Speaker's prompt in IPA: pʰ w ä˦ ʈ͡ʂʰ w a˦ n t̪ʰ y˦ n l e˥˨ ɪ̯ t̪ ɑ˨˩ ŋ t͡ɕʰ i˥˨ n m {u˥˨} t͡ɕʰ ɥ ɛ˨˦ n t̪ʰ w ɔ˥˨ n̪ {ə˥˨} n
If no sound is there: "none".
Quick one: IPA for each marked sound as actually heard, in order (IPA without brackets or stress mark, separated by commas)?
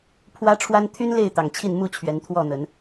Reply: u˥˨, ə˨˦